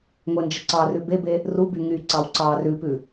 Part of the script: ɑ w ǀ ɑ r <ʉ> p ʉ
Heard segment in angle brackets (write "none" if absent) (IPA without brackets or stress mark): ʉ